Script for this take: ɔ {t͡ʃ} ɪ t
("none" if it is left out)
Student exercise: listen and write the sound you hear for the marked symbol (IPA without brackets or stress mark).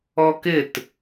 k